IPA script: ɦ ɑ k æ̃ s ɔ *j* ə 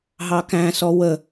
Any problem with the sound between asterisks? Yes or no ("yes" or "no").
yes